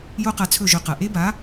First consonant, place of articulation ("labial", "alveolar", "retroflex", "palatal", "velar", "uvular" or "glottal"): palatal